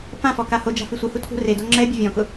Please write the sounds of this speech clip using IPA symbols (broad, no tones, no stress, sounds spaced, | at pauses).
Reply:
p ã f ɔ k a h o d͡ʒ a̤ f i sʷ i h u tʰ ṳ r e d o ŋ͡ǁ ɛ bʲ ʊ vʲ ɔ̃ k ʊ